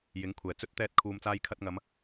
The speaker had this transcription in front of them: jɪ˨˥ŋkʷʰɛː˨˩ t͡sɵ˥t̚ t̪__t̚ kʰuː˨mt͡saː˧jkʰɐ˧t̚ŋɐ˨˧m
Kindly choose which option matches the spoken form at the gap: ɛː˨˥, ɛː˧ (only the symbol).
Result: ɛː˧